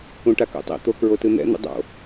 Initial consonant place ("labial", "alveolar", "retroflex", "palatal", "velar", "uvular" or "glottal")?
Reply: retroflex